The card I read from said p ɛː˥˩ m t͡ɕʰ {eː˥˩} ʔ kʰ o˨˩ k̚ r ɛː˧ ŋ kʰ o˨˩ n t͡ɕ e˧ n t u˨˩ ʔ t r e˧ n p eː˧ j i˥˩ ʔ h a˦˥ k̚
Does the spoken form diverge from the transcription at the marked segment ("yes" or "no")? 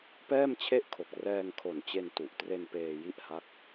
yes